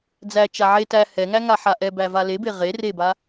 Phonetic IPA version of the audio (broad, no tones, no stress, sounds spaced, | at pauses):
d͡z æ t͡ʃ a ʕ e t æ h ɛ ŋ æ ŋ a ħ a ʔ ɛ b æ v a l e b e ʁ e r e b a